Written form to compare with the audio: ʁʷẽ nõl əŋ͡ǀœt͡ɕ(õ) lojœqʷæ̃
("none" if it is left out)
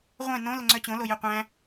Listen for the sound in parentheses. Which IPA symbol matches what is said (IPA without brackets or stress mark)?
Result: õ